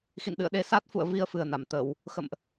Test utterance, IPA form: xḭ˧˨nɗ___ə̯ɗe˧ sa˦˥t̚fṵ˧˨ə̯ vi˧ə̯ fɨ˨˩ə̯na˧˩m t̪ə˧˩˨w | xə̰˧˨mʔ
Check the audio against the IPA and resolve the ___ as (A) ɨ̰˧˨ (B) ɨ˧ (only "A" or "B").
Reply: A